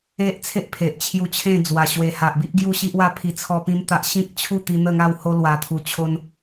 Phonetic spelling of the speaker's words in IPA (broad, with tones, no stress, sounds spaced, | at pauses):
e˦ ʔ t͡sʰ e˦ ʔ pʰ e˨ ʔ t͡ɕʰ j u˧ t͡ɕʰ ẽ˥˧ d͡z w a˨˩ ɕ w e˨˩ h a˨ ʔ b i˦ ʔ ɡ j u˥˧ ɕ i˦ ʔ w a˦ pʰ i˧ t͡sʰ ɔ˦ p ĩ˦ m t̪ a˦ ʔ ɕ ĩ˦ k̚ t͡ɕʰ u˥˧ t̪ i˧ n̪ ə˥˧ ŋ a˥˧ w h o˧ l w a˨˩ t̪ʰ u˨˩ t͡ɕʰ o˧ n